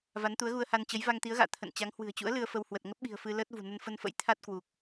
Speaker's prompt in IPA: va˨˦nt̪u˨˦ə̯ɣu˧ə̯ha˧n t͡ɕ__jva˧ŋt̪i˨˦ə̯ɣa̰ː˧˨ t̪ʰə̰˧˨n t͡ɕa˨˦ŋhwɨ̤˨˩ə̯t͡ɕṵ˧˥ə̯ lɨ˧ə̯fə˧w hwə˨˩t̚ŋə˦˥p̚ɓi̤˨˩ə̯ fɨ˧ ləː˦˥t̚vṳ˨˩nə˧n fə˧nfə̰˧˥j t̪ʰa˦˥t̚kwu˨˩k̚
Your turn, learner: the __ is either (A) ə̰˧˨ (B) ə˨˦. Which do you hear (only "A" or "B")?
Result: B